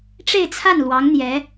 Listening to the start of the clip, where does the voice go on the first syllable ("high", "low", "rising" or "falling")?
falling